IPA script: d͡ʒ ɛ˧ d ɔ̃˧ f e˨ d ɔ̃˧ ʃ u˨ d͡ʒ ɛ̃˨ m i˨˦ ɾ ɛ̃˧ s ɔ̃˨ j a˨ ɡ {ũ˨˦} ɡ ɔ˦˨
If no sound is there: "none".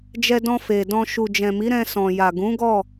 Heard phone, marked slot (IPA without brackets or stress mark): ũ˨˦